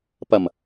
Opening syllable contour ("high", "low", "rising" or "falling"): low